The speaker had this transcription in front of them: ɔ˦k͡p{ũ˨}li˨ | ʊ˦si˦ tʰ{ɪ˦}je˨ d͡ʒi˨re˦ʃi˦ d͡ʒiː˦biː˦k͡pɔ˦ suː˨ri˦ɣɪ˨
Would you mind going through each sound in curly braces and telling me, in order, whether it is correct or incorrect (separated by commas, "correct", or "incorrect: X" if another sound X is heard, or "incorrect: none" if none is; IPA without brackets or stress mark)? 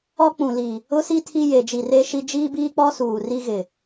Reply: correct, incorrect: i˦